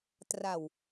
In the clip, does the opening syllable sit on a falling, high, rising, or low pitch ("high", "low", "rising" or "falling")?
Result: low